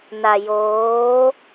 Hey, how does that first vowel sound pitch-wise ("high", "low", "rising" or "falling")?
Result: low